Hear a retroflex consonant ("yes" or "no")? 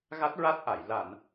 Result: no